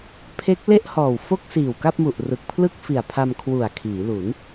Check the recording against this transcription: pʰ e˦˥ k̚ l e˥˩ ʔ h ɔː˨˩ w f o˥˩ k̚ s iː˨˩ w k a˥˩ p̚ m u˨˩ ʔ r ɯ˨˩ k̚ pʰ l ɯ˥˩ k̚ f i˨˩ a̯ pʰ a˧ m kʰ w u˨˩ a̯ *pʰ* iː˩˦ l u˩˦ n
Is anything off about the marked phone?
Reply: yes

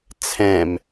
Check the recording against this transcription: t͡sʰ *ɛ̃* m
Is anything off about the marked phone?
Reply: no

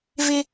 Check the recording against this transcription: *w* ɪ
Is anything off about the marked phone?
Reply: yes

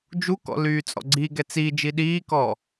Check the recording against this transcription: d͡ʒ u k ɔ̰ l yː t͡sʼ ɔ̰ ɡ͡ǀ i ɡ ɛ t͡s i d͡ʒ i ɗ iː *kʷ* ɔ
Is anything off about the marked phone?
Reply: yes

